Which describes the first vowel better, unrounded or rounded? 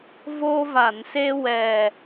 rounded